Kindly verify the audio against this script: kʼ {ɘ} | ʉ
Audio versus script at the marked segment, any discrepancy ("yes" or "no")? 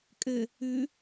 no